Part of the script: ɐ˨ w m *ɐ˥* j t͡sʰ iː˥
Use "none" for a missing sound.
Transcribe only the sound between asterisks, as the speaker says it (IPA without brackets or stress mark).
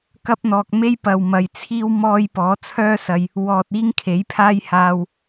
ɐ˨